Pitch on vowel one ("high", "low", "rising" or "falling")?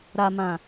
low